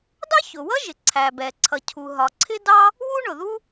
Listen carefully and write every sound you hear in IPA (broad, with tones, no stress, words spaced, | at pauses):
dɑ˥çʊ˩wʌ˥ʒɪ˩ ǀʰæ˩bɛ˩ ǀʰʌ˩cʰu˩ɦɒ˩ǀʰɪ˥ dɑ˥ | wu˥ɳʊ˩ðu˥